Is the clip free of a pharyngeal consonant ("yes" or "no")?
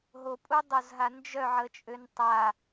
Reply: no